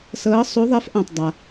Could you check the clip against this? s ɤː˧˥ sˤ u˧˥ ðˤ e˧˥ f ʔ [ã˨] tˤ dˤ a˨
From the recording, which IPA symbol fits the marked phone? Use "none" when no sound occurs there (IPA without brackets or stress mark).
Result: ã˨